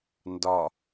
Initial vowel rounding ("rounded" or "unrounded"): rounded